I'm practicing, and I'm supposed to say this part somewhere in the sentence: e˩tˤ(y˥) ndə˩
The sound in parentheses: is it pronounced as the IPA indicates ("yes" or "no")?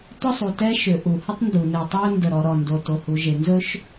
no